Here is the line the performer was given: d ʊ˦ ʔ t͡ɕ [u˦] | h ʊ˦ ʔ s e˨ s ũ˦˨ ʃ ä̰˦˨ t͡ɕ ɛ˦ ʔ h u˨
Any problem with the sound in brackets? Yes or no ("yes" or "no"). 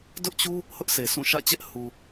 no